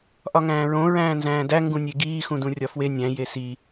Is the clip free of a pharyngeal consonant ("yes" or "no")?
yes